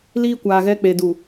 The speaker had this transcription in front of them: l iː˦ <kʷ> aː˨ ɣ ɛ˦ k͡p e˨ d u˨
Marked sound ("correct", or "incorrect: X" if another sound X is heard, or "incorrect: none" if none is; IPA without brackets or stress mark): correct